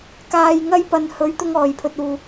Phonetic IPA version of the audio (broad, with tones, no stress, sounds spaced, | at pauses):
k aː˧ j ŋ ɐ˥ j p ɐ˨ n h ɵ˨˧ ɥ t̪ ʊ˥ ŋ ɔː˨ j pʰ ɵ˧ t̚ uː˨